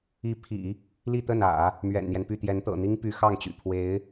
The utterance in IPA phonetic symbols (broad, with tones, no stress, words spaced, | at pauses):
i˧˥ pʰḭ˨˩˦ | li˥˧t̪ə˥˩nä̰˨˩˦ | mɥɛ̰˨˩nn̪jɛ˦npy˥˩t̪jɛ˧˥n t̪ɤ̰˨˩n̪i˥ŋ py˧˥xɑ˥˩ŋt͡ɕy̰˨˩ pʰwe˧˥ɪ̯